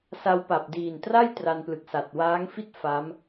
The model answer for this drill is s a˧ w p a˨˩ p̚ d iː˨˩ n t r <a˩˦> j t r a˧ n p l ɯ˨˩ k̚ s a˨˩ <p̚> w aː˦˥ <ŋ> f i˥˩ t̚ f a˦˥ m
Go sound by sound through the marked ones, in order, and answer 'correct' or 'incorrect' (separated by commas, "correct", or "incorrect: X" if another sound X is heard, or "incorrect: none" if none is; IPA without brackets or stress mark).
incorrect: a˥˩, incorrect: t̚, correct